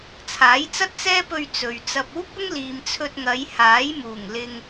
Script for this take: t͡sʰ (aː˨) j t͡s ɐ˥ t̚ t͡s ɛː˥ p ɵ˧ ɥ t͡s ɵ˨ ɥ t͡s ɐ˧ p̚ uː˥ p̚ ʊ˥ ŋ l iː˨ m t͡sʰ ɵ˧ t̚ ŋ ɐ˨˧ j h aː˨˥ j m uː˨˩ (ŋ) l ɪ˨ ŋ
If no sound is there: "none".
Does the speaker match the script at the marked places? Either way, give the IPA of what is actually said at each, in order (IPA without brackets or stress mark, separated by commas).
aː˨˥, ŋ